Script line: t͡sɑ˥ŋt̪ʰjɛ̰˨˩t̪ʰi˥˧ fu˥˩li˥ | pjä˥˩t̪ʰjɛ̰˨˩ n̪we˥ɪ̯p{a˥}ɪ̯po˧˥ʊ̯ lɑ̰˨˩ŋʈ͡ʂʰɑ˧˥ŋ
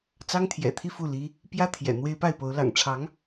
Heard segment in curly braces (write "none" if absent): a˥˩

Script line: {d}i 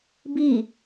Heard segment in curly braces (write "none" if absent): b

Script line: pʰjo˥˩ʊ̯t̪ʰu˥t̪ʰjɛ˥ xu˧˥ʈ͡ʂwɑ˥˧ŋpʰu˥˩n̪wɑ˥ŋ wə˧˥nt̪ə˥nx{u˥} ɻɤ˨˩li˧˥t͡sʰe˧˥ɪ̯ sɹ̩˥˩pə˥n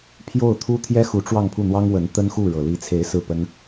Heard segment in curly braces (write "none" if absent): u˥˩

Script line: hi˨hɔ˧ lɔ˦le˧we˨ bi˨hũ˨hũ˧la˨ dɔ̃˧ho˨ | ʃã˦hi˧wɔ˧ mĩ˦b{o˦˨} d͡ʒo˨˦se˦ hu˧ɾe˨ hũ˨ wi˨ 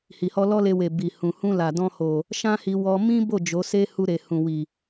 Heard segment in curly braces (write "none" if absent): o˦˨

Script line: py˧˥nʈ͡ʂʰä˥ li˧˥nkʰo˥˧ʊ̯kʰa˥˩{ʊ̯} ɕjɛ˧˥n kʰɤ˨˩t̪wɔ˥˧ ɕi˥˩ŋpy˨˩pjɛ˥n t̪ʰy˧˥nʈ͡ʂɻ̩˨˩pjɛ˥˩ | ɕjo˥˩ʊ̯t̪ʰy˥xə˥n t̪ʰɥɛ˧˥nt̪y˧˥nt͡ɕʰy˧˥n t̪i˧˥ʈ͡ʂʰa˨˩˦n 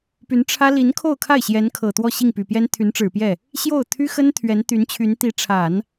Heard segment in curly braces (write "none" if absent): ɪ̯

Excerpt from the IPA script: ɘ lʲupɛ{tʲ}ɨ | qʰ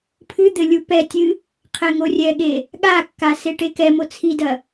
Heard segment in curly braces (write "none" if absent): tʲ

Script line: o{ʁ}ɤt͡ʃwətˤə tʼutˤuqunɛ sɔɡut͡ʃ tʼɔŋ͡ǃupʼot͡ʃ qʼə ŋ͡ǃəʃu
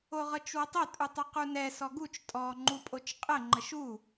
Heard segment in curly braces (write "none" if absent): ʁ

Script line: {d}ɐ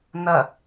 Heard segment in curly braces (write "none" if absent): n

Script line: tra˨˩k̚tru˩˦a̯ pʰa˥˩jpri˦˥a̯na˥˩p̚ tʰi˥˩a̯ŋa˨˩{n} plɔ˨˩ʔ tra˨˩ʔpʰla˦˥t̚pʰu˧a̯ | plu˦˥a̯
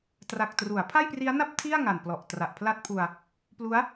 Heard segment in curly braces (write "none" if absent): n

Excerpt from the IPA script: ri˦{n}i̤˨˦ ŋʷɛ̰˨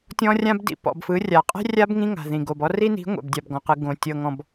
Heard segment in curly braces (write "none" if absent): n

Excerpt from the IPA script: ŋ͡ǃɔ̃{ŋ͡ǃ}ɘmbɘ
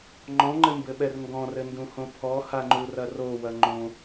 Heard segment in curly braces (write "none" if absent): ŋ͡ǃ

